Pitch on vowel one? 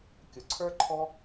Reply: low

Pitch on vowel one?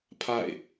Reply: falling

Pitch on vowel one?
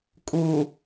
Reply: low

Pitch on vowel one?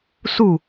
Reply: falling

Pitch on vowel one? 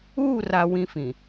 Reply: falling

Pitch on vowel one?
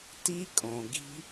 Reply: high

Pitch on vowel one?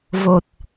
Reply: low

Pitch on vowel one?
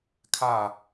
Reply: low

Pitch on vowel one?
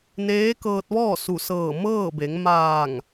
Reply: rising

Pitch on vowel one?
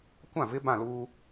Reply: falling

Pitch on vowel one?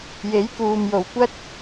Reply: rising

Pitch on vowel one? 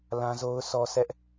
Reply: high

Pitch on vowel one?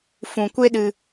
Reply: low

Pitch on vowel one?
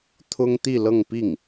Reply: high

